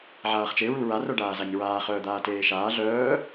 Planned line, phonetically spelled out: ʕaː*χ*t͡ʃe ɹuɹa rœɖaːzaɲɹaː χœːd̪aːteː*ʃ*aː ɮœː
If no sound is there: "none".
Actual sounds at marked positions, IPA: χ, ʃ

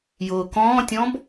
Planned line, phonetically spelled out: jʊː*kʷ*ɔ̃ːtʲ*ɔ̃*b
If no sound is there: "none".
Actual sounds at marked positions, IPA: k, ɔ̃

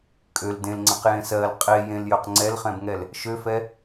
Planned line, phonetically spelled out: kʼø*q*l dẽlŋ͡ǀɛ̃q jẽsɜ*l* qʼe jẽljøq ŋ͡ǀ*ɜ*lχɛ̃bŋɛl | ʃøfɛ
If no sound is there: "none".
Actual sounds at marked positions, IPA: none, l, ɛ

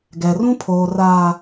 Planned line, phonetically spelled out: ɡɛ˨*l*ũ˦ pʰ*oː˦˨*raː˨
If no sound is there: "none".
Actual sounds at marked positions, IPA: r, oː˨

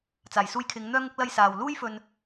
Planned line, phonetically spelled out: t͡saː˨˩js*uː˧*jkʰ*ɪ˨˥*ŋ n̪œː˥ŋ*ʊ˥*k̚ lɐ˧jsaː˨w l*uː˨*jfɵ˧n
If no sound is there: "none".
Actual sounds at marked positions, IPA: uː˧, ɪ˨˧, ʊ˥, uː˥

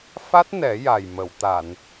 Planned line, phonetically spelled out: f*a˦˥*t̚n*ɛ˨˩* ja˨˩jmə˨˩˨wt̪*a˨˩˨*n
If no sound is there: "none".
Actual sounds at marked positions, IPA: a˦˥, ɛ˨˩˦, a˨˩˨

